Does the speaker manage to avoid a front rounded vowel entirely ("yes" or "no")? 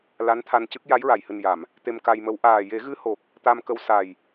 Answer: yes